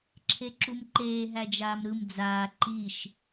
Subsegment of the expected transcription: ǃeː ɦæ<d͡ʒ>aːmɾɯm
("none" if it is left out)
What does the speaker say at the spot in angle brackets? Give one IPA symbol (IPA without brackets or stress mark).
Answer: d͡ʒ